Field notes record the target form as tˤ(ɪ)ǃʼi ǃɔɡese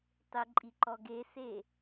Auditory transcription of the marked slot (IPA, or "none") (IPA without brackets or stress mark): ɪ